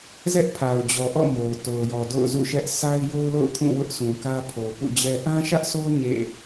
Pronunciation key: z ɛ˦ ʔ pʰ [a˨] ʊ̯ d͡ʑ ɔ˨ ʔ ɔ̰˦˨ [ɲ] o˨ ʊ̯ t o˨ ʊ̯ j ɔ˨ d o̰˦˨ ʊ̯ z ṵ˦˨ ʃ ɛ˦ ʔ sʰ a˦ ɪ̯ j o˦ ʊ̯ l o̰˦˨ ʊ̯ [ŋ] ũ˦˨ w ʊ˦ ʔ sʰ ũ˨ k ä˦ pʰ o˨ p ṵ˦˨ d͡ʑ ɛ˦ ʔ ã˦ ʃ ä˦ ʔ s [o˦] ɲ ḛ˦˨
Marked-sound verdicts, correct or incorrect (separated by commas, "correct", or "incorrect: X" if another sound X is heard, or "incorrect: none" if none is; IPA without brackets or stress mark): correct, incorrect: m, incorrect: kʰ, correct